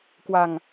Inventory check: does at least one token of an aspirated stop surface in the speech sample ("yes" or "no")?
no